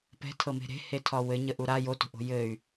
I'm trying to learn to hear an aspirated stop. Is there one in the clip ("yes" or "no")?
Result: yes